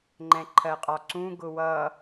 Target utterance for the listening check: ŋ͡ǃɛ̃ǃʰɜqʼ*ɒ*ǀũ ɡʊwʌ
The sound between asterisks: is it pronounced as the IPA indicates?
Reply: yes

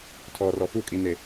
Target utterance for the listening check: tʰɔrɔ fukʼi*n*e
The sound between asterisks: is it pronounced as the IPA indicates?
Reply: yes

